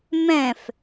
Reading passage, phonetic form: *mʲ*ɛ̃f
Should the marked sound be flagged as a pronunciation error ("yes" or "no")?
yes